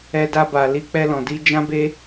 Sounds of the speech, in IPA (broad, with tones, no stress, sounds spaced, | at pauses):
ɛ˧ d a˧ b a˨ l i˧ k͡p ɛ˧ l ɔ̃˨ d i˧ d͡ʒ ã˦ b e˦